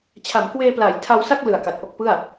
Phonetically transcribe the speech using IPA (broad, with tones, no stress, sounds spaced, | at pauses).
t͡ɕʰ a˩˦ m k w eː˧ p l aː˩˦ j tʰ a˧ w s a˥˩ k̚ l ɯ˨˩ a̯ k a˨˩ t̚ ʔ o˥˩ k̚ p ɯ˥˩ a̯